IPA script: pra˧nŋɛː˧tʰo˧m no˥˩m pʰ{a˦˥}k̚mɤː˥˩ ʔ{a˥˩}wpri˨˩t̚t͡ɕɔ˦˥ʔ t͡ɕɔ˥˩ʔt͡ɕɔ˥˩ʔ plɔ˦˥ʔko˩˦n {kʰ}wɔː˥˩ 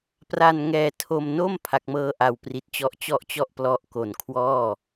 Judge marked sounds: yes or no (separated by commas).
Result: yes, no, yes